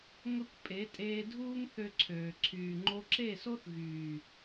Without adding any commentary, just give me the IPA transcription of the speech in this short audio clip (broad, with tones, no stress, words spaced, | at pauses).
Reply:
ŋə˦kʷ pʼe˨˦tʼeː˧dʱuː˦ŋ θø˦ǀʰøː˨ ǀʰyː˨ ŋ͡ǃo˧ǁe˦˨so˦θ ɣyː˨